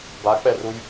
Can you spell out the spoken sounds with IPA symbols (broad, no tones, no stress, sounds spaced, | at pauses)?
b a k͡p ɛ r u j